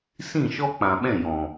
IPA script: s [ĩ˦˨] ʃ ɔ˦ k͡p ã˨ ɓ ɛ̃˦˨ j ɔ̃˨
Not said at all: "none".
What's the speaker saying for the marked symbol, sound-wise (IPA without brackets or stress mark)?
ĩ˦˨